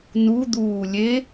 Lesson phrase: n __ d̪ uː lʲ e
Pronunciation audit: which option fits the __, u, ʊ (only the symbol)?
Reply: u